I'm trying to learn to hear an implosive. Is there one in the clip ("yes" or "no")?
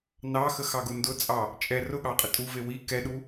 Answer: yes